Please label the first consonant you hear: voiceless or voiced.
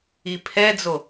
voiceless